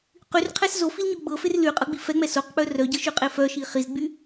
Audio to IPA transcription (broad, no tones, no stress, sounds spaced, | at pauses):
q y r qʰ ɛ s z o f i l ɲ o ɡ͡b ɤ f e r l y qʼ ɤ ɡ͡b i f ɛ ŋ͡m ɛ s o q k͡p œ r œ ɟ ɤ ʃ y qʼ e f œ ʃ i χ i z ɡ͡b y